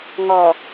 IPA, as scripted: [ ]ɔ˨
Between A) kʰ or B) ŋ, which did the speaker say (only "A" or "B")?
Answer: B